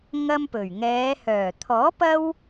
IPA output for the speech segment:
ŋ ɐ˥ m p ɵ˨˩ ɥ ŋ ɛː˨˧ h œː˨˩ t̪ʰ ɔː˨˥ p ɐ˥ w

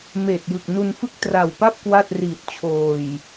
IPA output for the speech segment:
m eː˨˩ t̚ j ɯ˨˩ k̚ n u˧ n f ɯ˥˩ k̚ t r a˨˩ w p a˥˩ p̚ k w a˥˩ t̚ r i˨˩ t̚ t͡ɕʰ oː˨˩ j

